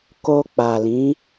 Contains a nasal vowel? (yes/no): yes